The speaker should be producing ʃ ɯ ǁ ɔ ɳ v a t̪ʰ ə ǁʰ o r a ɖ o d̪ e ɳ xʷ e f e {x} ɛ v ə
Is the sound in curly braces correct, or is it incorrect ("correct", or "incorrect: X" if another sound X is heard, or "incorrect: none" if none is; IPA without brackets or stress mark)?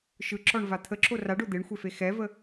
correct